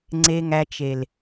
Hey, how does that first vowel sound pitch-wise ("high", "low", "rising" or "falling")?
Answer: low